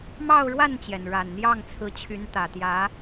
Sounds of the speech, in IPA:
m ɑ˥˧ ʊ̯ ɻ w a˥˩ n t͡ɕ j ɛ˩ n ɻ a˨˩ n n̪ j ɑ˥˩ ŋ t͡sʰ ɹ̩˧˥ t͡ɕʰ y˧˥ n t̪ ä˨˩ t̪ j ä˧˥

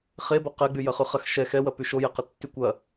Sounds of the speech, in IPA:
χ e b o q ɛ ɡ͡b y j ɐ χ ʉ χ ɐ x ʃ ɛ x ɛ w ɐ p y ʃ o j ɛ q ɐ tː y kʷ ɐ

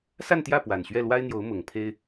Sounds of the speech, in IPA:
s a˥˧ n t̪ j ä˥˩ p w a˨˩ n ɕ ɥ ɛ˥˩ l w a˥ ɪ̯ n̪ j o˧˥ ʊ̯ m ʊ˨˩ ŋ pʰ e˥ ɪ̯

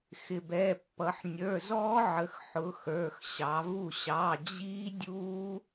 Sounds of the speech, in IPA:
x ɪ˩ b ɛ˩˧˩ pː ʌ˩˧ ħ nʲ ə˞˩˧˩ z ɔː˦˥ ʕ ə˩˧ x ħ ʊ˨˥ x ə˞˩˧˩ x ɕ ɑ˩˧ v u˥˩ ɕ ɑ˩˧˩ d͡ʑ iː˦˥ dʲ uː˦˥

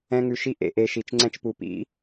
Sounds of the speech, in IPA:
ɛ̃˦ ŋ ʉ˧ ʃ i˦ ʔ ḛ˨ ʔ e˨ ʃ i˨ t͡ʃ ŋ͡ǀ ɛ̃˧ t͡ʃ p u˨ p ḭ˦

